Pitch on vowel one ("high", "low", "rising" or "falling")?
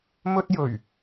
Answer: high